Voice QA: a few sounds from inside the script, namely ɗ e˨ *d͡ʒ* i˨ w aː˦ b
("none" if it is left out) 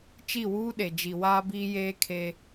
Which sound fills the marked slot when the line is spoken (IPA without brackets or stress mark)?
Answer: d͡ʒ